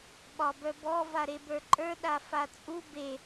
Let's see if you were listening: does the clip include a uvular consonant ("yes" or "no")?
no